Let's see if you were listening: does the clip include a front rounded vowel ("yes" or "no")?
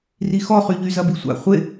yes